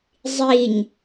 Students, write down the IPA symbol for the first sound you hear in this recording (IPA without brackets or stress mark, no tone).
zˤ